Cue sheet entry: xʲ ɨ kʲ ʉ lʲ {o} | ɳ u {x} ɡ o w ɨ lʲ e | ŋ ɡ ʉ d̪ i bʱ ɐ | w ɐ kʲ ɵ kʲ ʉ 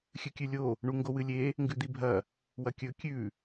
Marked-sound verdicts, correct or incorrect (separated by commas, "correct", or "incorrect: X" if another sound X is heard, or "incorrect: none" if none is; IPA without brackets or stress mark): correct, incorrect: ŋ